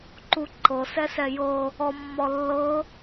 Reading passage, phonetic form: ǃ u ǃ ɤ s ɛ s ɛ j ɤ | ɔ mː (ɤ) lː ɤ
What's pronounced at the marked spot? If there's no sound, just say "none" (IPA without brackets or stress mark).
ɔ